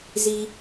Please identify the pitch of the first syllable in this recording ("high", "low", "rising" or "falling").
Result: high